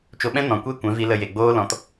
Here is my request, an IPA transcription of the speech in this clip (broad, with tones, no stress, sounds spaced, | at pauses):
t͡ʃ o˧ ɓ ɛ̃˦ n ɔ̃˨ kʷ e˦ kʷ ɛ̃˨˦ v i˧ l ə˧ j e˨ ɡ͡b oː˦ l ɔ̃˨˦ t